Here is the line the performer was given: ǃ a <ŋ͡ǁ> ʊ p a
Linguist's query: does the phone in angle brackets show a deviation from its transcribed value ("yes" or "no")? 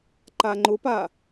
yes